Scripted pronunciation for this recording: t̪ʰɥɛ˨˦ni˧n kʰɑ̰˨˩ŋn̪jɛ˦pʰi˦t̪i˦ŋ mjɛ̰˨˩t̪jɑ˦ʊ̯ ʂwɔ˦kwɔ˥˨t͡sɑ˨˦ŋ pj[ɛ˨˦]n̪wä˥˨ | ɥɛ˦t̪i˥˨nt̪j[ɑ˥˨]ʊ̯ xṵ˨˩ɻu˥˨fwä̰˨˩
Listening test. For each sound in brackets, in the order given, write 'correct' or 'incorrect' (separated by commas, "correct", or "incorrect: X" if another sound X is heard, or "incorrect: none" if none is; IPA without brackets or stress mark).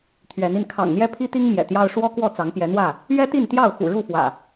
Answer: correct, correct